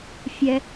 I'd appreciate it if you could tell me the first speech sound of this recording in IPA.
fʲ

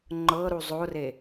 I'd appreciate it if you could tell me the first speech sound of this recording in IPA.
ŋ͡ǃ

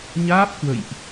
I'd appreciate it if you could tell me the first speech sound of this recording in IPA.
ɲ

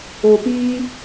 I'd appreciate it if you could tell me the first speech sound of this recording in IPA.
o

